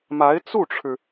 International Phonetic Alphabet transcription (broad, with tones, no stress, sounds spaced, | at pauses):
m a˧˥ ɪ̯ t͡s u˥˩ ʈ͡ʂʰ ɻ̩˩